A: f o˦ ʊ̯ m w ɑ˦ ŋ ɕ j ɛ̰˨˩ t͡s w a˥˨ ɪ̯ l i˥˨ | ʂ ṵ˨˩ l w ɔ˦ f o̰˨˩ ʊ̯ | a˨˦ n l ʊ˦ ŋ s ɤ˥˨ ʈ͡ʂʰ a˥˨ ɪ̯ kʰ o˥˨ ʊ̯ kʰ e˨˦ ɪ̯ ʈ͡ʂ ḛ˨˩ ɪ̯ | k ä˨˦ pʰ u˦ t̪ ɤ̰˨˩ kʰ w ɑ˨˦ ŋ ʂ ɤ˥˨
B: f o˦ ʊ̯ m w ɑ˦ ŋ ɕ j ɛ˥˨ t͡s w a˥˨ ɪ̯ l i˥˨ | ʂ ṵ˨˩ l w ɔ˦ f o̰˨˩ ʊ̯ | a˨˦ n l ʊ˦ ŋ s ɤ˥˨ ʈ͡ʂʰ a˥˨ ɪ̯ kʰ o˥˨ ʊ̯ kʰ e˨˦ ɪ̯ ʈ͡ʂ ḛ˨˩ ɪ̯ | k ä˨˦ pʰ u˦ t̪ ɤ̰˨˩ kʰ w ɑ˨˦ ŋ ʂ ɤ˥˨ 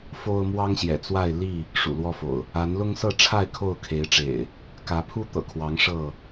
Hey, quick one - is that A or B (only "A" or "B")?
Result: A